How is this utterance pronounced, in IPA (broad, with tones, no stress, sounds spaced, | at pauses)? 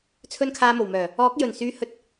t͡sʰ ɵ˧ n kʰ aː˨ m o˨˩ w m œː˨˩ | ɔː˨˥ k̚ j ɵ˨˩ n s yː˨ h ɵ˧ t̚